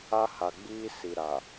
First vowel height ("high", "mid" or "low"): low